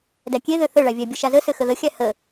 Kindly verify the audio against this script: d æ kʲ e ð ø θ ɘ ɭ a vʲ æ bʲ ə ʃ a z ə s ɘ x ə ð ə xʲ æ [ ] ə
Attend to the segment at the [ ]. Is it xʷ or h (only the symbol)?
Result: h